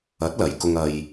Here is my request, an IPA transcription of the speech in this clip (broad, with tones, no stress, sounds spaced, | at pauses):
ɐ˨˥ t̚ l ɐ˧ j k ʊ˥ ŋ ɐ˧ j